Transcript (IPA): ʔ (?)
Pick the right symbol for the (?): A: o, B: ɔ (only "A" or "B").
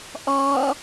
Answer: B